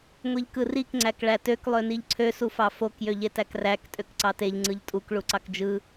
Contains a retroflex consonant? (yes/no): yes